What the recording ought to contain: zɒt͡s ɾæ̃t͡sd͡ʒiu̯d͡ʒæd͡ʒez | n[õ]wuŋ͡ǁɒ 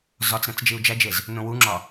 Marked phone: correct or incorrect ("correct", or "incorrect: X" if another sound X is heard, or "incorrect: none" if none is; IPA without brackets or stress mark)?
correct